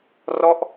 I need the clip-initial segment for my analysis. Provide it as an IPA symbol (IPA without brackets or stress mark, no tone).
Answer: r